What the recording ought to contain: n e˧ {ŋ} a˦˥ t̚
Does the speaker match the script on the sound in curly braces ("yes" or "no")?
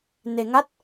yes